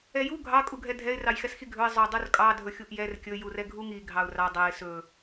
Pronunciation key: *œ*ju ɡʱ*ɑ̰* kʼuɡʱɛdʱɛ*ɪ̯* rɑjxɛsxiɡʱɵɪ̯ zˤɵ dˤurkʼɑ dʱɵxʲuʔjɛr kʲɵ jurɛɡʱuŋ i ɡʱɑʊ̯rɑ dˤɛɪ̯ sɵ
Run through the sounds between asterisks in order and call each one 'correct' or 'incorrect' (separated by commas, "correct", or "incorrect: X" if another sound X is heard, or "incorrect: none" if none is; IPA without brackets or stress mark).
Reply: incorrect: ɛ, incorrect: ɑ, correct